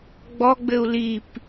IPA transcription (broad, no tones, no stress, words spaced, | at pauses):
ɡ͡bɔɡ͡bɘu̯ lip